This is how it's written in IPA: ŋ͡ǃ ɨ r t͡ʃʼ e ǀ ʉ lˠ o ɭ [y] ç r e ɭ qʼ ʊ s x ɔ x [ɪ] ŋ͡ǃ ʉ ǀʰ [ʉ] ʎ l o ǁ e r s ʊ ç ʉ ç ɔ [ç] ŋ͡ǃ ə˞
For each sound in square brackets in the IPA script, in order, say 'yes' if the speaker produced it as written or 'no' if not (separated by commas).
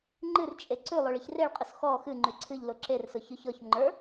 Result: no, no, no, yes